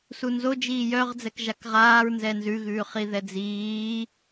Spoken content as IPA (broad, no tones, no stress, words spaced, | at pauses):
sunzo d͡ʒiːjœʁ d͡zɛkʒakʁaːɹ nzɛnzʉɣʉː χiðɛd͡ziː